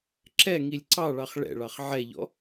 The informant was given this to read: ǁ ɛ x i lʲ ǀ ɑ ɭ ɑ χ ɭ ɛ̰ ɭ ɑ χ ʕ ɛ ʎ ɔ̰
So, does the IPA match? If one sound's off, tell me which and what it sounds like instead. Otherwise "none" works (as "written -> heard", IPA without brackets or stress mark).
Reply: x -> ŋ